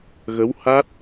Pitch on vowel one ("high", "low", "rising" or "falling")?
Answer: rising